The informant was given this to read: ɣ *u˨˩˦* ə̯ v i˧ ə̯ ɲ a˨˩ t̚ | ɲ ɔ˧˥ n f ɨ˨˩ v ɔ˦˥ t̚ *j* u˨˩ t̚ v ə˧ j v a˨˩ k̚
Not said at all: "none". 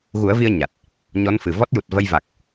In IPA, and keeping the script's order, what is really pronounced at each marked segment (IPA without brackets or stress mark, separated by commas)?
u˨˩˦, j